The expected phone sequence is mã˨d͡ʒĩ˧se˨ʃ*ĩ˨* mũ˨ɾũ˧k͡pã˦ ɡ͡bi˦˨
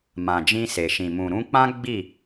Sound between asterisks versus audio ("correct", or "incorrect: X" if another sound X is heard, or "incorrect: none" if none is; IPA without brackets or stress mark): correct